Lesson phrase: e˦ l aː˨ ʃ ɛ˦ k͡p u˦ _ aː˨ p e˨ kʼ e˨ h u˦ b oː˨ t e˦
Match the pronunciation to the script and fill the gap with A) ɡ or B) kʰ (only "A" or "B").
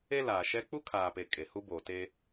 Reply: B